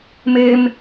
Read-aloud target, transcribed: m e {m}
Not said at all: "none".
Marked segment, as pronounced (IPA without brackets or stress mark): m